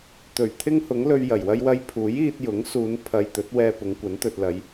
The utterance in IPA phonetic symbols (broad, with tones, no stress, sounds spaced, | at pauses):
t̪ ɵ˨˩ ɥ t̪ʰ ɪ˥ ŋ h ʊ˨˥ ŋ l ɵ˧ ɥ j ɐ˨˩ j w ɐ˥ j w ɐ˥ j pʰ uː˨˥ j iː˧ t̚ j ʊ˨˥ ŋ s uː˨˧ n pʰ ɐ˨ j t̪ ɵ˨˥ t̚ w ɛː˧ p ʊ˨˧ ŋ kʷ ɐ˨˥ n t̪ ɵ˨ t̚ l ɐ˨˧ j